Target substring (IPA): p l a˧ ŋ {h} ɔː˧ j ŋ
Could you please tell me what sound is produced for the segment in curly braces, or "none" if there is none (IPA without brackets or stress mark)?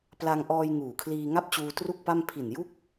ʔ